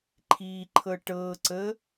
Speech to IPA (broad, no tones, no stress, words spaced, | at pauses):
ǃʰiǃʰɤ ʈɤǀə